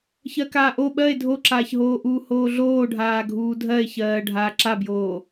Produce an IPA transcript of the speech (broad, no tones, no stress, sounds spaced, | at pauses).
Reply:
ç ɜ k aː ʔ o ɓ ɜ e̯ dʱ o ǁ aː ç ɦ oː ʔ uː h oː ɮ oː ɖʱ aː ɡʱ uː dʱ ɜ e̯ ç ɜː ɖʱ aː ǁ a b j oː